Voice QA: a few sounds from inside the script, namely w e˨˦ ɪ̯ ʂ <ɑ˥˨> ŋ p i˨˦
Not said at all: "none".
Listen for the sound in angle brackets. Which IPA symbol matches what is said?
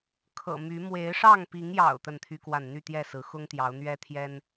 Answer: ɑ˥˨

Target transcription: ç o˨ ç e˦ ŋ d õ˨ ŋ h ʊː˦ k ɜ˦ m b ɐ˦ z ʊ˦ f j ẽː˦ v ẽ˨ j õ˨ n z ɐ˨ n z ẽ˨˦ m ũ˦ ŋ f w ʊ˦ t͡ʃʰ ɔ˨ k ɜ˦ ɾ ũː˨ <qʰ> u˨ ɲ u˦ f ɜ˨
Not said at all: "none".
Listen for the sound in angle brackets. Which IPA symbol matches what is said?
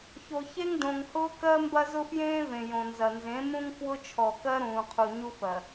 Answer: qʰ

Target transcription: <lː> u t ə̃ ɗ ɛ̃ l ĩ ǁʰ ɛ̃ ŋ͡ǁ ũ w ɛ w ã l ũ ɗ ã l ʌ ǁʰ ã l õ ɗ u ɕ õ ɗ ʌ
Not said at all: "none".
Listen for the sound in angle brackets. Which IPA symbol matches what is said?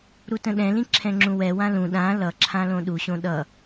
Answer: ɾ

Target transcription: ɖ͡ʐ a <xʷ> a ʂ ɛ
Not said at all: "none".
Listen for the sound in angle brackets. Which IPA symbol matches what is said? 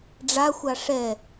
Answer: xʷ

